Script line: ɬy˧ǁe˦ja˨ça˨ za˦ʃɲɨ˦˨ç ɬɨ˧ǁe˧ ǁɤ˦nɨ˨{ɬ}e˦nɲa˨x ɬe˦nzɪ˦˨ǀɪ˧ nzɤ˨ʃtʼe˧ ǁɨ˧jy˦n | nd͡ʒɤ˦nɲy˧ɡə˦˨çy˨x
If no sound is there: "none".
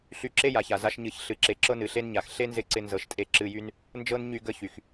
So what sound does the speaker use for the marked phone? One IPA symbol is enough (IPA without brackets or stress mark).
ɬ